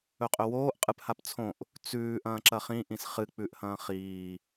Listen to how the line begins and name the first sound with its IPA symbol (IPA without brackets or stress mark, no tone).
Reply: ɵ